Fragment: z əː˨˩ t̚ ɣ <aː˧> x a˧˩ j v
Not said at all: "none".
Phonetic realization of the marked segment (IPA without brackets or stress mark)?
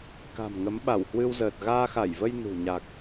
aː˧